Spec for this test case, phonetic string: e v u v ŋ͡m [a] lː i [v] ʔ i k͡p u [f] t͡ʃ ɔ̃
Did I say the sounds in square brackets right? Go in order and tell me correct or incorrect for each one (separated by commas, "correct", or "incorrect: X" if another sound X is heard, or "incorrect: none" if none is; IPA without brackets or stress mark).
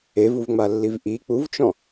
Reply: correct, correct, incorrect: v